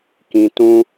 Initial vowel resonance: nasal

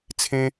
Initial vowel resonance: nasal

